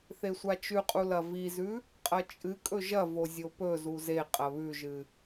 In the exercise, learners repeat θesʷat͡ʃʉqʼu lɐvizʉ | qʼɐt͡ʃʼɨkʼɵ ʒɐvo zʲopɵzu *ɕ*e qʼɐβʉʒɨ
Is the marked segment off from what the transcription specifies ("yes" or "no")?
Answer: yes